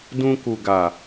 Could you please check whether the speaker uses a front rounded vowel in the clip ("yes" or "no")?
no